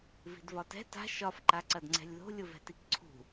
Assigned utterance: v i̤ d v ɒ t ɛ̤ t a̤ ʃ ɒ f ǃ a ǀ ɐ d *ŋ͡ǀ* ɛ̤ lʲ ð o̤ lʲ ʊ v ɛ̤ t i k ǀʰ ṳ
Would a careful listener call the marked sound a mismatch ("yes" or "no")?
no